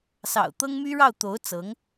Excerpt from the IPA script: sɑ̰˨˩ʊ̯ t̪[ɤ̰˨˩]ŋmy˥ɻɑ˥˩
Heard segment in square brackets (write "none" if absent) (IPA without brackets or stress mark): ɤ˥